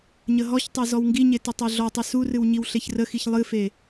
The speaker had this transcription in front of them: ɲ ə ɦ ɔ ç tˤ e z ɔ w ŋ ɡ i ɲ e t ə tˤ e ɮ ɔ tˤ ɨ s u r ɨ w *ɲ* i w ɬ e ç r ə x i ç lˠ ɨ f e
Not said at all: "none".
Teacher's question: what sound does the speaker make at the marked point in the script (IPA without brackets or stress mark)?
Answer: ɲ